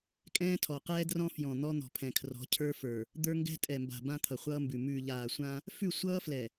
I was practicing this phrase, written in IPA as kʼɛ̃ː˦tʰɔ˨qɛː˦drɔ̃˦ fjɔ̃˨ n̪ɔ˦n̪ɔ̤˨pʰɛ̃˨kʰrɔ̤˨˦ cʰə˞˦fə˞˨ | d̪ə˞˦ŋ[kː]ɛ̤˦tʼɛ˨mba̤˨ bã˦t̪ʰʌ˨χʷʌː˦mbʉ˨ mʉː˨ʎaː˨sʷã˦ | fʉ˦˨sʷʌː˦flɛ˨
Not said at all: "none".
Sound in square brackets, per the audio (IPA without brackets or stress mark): ɡ